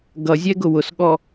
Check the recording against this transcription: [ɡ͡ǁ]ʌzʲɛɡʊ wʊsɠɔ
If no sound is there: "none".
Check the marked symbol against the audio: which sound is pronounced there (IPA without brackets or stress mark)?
ɡ